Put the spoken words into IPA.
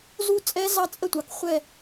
z u˦ t͡sʼ ɛ˦ z ɑ˦ t͡sʼ ə˦˨ tʷ ɑ˨ k χʷ ɛ˦˨

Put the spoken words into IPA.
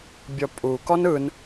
bʲ ɔ pʼ u k ɔ n ɯ n

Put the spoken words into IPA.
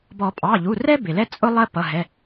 b ɔ˨˩˦ pʼ ɑ˩˧˩ ʎ u˩˧˩ r ɛ˥ b ɪ˩ l ɛ˥ t͡sʼ ʊ˥ lˠ ɜ˥ p ʌ˩˧˩ ɦ ɛ˩˧˩

